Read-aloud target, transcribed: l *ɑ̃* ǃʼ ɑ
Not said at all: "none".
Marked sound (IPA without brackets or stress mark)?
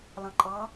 ɑ̃